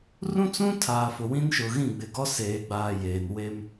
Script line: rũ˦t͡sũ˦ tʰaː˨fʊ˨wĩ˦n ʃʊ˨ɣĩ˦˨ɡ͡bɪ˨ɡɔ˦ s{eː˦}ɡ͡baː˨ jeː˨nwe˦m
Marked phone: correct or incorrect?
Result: incorrect